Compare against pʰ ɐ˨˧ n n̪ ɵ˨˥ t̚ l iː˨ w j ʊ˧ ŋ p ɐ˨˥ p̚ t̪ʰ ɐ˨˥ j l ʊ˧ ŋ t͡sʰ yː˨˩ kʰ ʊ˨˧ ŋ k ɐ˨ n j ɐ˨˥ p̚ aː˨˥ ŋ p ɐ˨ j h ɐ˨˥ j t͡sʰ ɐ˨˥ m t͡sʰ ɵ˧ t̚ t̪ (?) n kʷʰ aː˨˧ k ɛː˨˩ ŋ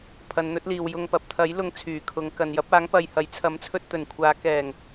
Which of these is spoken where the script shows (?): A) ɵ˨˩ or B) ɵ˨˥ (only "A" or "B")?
A